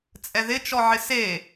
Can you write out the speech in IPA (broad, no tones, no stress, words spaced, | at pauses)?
t͡sʼɛðɪt͡ʃɔʕɪ se